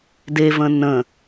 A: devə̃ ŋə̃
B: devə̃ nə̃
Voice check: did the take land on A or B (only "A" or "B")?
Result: B